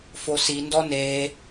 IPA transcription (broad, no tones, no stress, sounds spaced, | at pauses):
f o s i n d ɔ n e